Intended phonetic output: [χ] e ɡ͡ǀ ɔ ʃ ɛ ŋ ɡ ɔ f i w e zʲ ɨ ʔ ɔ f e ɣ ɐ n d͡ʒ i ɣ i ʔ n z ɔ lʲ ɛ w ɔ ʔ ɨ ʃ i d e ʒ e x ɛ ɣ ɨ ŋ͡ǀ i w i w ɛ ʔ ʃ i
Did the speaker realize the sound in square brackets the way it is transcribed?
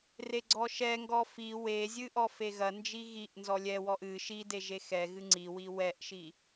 no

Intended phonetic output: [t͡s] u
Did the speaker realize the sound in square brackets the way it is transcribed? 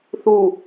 no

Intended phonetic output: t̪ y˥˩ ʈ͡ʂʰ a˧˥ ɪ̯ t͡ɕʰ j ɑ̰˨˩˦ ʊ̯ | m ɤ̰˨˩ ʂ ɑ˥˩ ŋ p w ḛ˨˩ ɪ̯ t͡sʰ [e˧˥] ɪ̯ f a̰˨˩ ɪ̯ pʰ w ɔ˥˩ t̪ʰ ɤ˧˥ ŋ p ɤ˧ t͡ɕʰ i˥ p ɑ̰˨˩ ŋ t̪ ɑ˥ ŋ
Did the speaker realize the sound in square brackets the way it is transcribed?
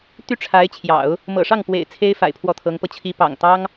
no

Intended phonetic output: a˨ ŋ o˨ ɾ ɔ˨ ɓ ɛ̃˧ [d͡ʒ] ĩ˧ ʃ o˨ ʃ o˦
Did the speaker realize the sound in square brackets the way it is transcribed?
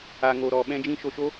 yes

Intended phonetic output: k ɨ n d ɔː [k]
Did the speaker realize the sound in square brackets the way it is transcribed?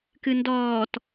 no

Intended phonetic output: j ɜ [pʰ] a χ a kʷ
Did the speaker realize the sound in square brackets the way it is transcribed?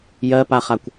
no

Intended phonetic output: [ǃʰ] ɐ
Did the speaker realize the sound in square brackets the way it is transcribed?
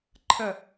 yes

